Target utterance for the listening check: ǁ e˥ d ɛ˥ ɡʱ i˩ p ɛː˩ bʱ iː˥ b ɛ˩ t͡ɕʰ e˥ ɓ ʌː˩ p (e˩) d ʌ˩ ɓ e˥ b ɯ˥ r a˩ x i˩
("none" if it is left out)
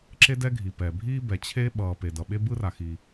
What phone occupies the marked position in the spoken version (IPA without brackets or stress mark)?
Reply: e˩